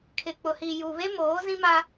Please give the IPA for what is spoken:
kʰ ɪ˨ k͡p ʊ˨ h i˨ j u˨ β e˦ m oː˨˦ z ĩ˦ m a˦

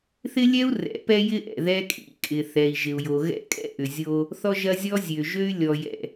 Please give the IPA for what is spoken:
θ ɪ˦ lʲ ɛ˦ u̯ r ɛ̰˨˦ p ɛ˦ j ɪ˦ ʔ ɛ̰˨ ð ɛ˦ kʼ ḭ˦ kʼ ɪ˨ θ ɛ˨ i̯ ʒ ɪ˨ u̯ j o˨ ɣ ɛ̰˦ kʼ ɛ̰˦ ʔ ʏ˨ zʲ o˦ | θ ɔ˦ ʒ ɐ˦ zʲ ɔ˦ zʲ ø˨ ʒ ø˦ y̯ lʲ ɔ˨ j ɛ̰˨

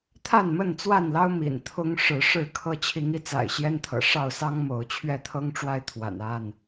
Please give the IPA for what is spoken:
t̪ʰ a˥˨ n m ə˥˨ n t͡s w a˥˨ n l ɑ˦ ʊ̯ m ḭ˨˩ n t̪ʰ ʊ˦ ŋ ʂ ɻ̩˨˦ ʂ ɻ̩˥˨ kʰ ɤ˦ t͡ɕʰ i˨˦ ŋ i˨˦ t͡s a̰˨˩ ɪ̯ ɕ j ɛ˦ n t̪ʰ ɤ̰˨˩ ʂ ɑ˥˨ ʊ̯ s ɑ˦ ŋ m o˨˦ ʊ̯ t͡ɕʰ ɥ ɛ˥˨ t̪ʰ ɤ˦ ŋ ʈ͡ʂ w a˦ ɪ̯ t̪ʰ w a̰˨˩ n a˥˨ n

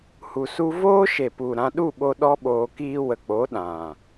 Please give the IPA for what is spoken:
h u˧ s u˦ v oː˦ ʃ e˨ p u˨ ɾ ã˧ ɗ u˦˨ ɓ o˧ ɗ ɔ˦ ɓ oː˧ k iː˧ w ə˨ k͡p o˨˦ ɗ ã˨

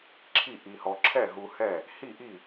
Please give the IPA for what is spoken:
ǁʰ i˥˨ ʔ i˧ h ɔ˧ ǁʰ ɛ˥˨ ɦ u˧ h ɛ˥˨ | h i˥˨ ʔ i˥˨

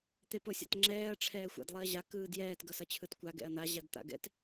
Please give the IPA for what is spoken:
t̪ e p o sʲ a̰ t ŋ͡ǁ ɛː ɐ̯ ʈ͡ʂʰ ɛː xʷ a̰ d lˠ i ɐ̯ ʑ a k ɯː d j ɛː t ɡ ʌ s ʌ t͡ɕʰ ɯ t kʷ a ɡ ɛ̰ ɐ̯ n̪ a ʑ a d t̪ a̰ ɡ ɛ̰ t

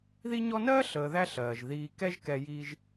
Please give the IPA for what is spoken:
ð i˦ ɲ ɔ˦ n ɜː˥ ɬ əː˨ ð æ˦ ɬ ɜː˩ ʒ ð iː˨ k ɛ˦ ʒ k ɛ˨ j iː˦ ʒ

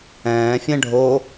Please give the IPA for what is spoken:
ɛ̃ː fʲ ɛ̃ ɖʱ o

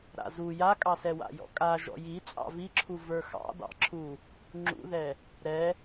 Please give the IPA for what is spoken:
ɾ a̰ z u j a kʼ ɑ s ɛ w a̰ j ɔ̰ kʼ a ʒ ɔ̰ j i t͡sʼ ɑ̰ v i ǁʰ u v ə˞ x ɑ̰ d ɑ̰ ǁʰ u | ŋ͡ǁ ṵ ð ɛ | ɾ ɛ

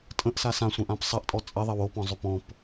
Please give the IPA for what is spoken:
tʼ ə̃ ʔ s a s ã sʷ ə̃ ʔ ã p sˤ ɐ ʔ tʼ ɔ t͡sʼ ɐ ðˤ ɐ w o p ɔ̃ zˤ ʏ p ɔ̃ p

